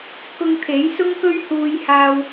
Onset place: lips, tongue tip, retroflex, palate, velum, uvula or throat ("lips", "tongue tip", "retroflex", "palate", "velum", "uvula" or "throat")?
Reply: velum